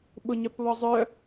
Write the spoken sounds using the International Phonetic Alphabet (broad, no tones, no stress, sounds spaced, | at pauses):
ɓ ʊ ɲ œ p β ɔ zˤ œ